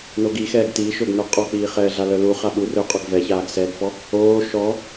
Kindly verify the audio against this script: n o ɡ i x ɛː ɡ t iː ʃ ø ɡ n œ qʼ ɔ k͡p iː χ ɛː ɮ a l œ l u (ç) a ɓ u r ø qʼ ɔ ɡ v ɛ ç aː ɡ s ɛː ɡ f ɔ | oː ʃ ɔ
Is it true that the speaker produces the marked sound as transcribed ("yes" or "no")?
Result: no